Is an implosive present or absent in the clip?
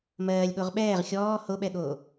present